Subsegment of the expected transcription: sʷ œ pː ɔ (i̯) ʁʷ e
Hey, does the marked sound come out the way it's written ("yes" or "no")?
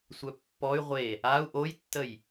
no